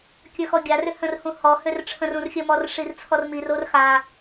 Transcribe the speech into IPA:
kʲ ə˞ x ɔ ɡʲ a r ʏ h ə̃ r h ũ h ɔ h ø r ʈ͡ʂʰ ə̃ r ũ r xʲ ə m ɔ r ʂ i r t͡sʰ ɔ r m i r o r x a

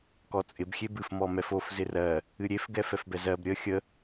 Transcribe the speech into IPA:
k ɔ t͡sʼ ɪ b xʲ e b ɨ f m ɔ m ɛ f o f z ɪ r ɜ | ɨ ɾʲ e f ɡ ɛ f ɛ f b ɛ z ɜ b ɾʲ ə xʲ ə

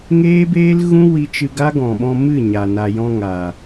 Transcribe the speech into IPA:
ŋ eː˦ b eː˦ l ɣ ũ˦ w i˧ t͡ʃ ɨ˧ ɡ a˦ ɡ ɔ̃˨ ɓ ɔ̃˧ m ɨ˦˨ ɲ a˨ n a˨ j ɔ̃˧ ŋ a˨

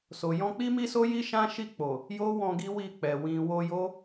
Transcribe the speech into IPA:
s o˨ j ɔ̃˧ k͡p i˦ m i˦ s o˦ j i˦ ʃ ã˦ ʃ i˦˨ k͡p o˨ | j o˦ w ɔ̃˧ ɡ i˦ w i˦˨ k͡p ɛ˨ w ĩ˨ w o˧ j o˦

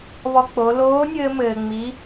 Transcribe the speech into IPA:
β ɔ˧ k͡p o˩˧ l oː˧˥ nʲ ɘː˧ m ɘː˩ ŋ͡m i˩˧

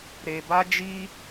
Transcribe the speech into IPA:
ɾ e˧ b a˦ d͡ʒ i˦

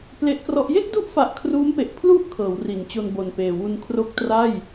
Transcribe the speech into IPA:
p l e˦˥ ʔ k r ɔ˦˥ ʔ j e˥˩ k̚ d u˦˥ ʔ f a˨˩ ʔ kʰ r uː˦˥ m p e˨˩ ʔ pʰ l u˦˥ ʔ kʰ ɤː˩˦ w r i˩˦ n t͡ɕ o˧ n b o˨˩ n p eː˨˩ w u˧ n kʰ r o˦˥ k̚ t r a˥˩ j

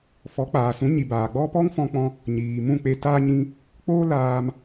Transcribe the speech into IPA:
f ɔ˨˦ k͡p aː˨ s ũ˨˦ ɲ i˨ b aː˨ ɡ͡b ɔ˦ p ɔ˦ ŋ f ɔ̃˧ k͡p ɔ̃˧ | ɲ iː˨ m ũ˦˨ k͡p e˧ t aː˧ ɲ ĩ˧ | k͡p oː˦ l aː˧ m

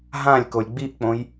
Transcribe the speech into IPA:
ɦ ã lʲ k o lʲ ɡ͡b i ʔ k͡p õ j

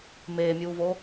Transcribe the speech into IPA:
m eː mʲ uː v o

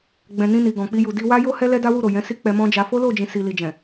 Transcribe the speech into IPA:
ɡ͡b ɛ̃˨ n ĩ˧ n i˨ ɡ ɔ̃˨ k͡p i˧ j u˨ d i˧ w a˦ j o˦ h ɛ˦ l ɛ˦ d a˦ w u˦˨ ɾ o˨ j ɛ̃˨˦ s i˦ k͡p ɛ˧ m ɔ̃˦ d͡ʒ a˧ f o˦ l o˦˨ d͡ʒ ĩ˨ s i˨ l i˨ d͡ʒ ɛ̃˨

